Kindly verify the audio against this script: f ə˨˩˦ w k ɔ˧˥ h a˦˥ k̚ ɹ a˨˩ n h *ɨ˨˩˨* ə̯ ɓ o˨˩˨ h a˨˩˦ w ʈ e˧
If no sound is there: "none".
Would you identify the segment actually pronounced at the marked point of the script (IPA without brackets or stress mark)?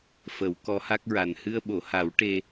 ɨ˧